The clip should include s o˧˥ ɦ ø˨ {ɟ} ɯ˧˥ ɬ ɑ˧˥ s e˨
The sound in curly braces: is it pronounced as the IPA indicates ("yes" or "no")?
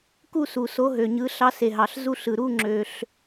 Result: no